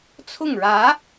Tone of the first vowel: falling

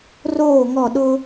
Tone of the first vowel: falling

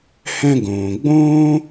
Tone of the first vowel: high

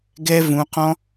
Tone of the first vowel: high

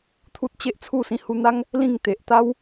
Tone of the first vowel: high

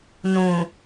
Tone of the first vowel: low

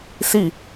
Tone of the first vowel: falling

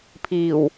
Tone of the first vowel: low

